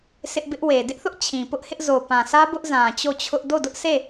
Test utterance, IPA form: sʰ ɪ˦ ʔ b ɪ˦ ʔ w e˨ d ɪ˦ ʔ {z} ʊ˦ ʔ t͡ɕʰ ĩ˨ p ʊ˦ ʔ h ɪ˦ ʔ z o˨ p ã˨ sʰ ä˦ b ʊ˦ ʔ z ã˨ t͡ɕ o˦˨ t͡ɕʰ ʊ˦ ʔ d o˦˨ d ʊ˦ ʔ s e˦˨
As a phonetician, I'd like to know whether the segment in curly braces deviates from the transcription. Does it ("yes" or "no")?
yes